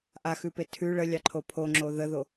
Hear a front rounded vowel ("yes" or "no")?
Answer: no